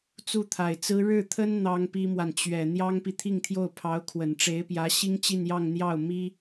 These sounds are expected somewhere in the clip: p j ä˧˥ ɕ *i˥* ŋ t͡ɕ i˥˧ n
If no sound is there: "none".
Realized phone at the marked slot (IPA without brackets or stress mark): i˥